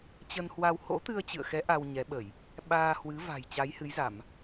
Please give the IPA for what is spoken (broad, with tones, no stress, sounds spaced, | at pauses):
t͡ɕ ə˧ n h w a˧ w h o̰˧˥ t̪ ɨ˧ ə̯ t͡ɕ ɨ̰˧˨ ə̯ x ɛ˨˦ ʔ a˧ w ɲ ɛ˨˦ ɓ ə˧˩˨ j | ɓ aː˧ h w ɨ˨˦ v a̤˨˩ j t͡ɕ a˨˦ j h ɨ˨˦ j z a˧˩˨ m